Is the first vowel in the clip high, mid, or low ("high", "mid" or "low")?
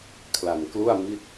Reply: low